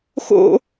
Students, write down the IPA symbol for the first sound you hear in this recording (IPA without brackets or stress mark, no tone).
x